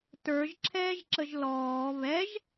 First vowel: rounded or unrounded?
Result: unrounded